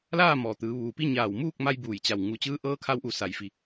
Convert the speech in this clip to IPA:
l aː˥˨ m ɔː˩ t̪ ɯː˩˧ ʋ uː˩ p i˥˨ ɲ aː˧˩ w m uː˥˨ k̚ m a˧ j b uː˧˩ j t͡ɕ a˧˩ w ŋ u˧˩ t͡ɕ ɯː˧˥ ʔ ɤː˧˥ kʰ a˧ w ʔ u˧˩ s a˩ j f i˩

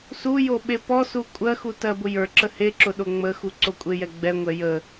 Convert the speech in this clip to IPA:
s u j o ɓ e p ɔ s u kʷʼ ɜ x u t ɜ b ʊ j ə˞ ǁ ə h e ǁ ʊ ɗ o ŋ͡m ə x u ǀ o kʷʼ e j ɛ ɡ͡b ɛ ŋʷ ɛ j ə

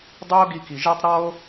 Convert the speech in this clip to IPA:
dˤ y˦ o̯ ɡ i˦ k i˧ ʒ e˦ tˤ ɾ ɔ˦ o̯

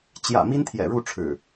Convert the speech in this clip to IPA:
t͡ɕ j ä̰˨˩ m i˦ n t̪ʰ j ɛ̰˨˩ ɻ u˥˨ ʈ͡ʂʰ ɻ̩˨˩

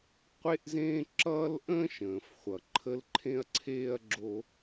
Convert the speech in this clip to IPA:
qʷ e˦ ʔ z ẽː˦ ǁ ʌː˦ l ʔ ə̃ː˥ ʃ ə̃ː˩ f χʷ ʌ˩ ǃʰ ə˦ l ǃʰ ẽ˦ ɐ̯ ǀʰ eː˥ ɐ̯ ɡ͡ǁ o˦

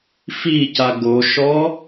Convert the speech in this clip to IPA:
f i c a ɡ o ʃ ɔ

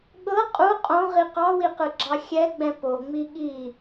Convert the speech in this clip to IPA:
ɠ ɤ qʼ u qʼ õ ʁ i q ɑ w i q ɯ ɡ͡ǁ ɑ xʲ ɛ ɡ͡b ɛ̃ p o ŋ͡m i ɠ i

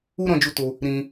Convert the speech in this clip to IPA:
u˦ ɾ ɔ̃˧ d͡ʒ u˧ t o˧ | ɾ ĩ˧

